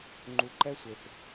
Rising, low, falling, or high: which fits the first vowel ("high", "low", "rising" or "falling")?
low